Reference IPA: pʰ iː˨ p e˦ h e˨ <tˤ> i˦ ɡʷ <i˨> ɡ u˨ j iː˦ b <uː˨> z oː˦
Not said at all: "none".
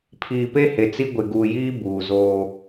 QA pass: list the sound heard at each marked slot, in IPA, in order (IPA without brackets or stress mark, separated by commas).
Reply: t͡s, ɪ˨, uː˨